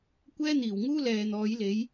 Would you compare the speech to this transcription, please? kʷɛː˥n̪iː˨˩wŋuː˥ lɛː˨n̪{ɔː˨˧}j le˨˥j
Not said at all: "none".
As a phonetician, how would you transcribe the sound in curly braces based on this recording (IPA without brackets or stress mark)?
ɔː˨˥